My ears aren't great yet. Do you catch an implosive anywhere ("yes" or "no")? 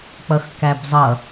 no